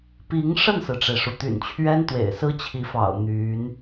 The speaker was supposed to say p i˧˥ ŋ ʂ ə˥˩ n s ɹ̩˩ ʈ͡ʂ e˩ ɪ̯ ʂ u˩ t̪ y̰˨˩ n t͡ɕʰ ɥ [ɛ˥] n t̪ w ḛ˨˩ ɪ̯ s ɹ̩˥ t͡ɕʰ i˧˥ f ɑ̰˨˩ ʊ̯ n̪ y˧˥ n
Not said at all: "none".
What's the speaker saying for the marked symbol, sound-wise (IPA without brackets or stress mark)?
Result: ɛ˥